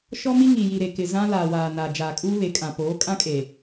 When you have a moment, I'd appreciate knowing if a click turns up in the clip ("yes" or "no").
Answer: no